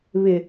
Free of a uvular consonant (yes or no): yes